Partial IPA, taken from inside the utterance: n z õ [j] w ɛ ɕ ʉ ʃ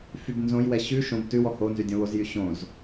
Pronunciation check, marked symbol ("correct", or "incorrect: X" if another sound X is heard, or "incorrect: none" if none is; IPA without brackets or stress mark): correct